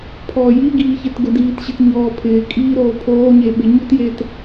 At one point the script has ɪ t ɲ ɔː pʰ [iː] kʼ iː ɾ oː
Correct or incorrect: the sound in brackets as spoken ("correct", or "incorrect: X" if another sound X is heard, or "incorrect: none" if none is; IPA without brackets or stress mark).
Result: incorrect: ɪː